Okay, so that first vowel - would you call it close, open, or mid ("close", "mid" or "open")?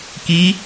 close